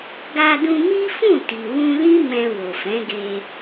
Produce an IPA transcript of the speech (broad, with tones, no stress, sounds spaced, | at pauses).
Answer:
ɡ a˧ d ũ˧ m i˦ f ũ˦˨ t i˨ w ũ˧ l ĩ˦ m ɛ̃˧ w o˨ f ɛ̃˨˦ ɡ e˧